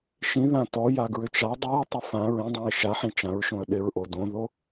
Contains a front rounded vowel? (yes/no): yes